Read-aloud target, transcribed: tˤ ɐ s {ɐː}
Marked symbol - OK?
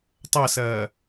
yes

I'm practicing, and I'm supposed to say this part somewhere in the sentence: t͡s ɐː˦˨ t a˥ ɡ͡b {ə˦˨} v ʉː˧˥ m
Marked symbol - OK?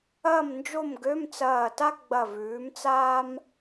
no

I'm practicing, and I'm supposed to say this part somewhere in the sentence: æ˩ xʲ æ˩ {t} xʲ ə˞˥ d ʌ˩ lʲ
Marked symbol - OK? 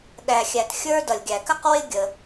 yes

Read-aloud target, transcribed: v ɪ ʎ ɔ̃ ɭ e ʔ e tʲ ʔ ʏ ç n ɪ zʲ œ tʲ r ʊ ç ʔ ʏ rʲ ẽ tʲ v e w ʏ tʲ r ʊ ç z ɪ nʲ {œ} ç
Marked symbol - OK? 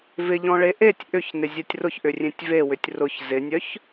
yes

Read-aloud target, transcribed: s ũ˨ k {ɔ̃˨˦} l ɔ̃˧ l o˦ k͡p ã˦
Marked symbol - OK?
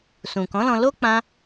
yes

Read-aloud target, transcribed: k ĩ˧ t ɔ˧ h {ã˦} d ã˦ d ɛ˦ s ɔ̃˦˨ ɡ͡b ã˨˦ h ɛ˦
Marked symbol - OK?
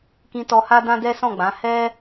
no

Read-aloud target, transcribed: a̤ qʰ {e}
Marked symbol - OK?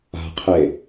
yes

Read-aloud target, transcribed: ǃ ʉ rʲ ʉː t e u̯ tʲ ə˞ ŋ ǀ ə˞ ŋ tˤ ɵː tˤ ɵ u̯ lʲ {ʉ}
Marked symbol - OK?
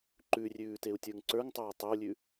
yes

